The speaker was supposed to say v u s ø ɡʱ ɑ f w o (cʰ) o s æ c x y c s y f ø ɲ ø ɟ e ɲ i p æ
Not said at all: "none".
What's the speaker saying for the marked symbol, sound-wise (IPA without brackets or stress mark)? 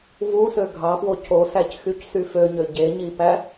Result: cʰ